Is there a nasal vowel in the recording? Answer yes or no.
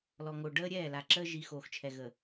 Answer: no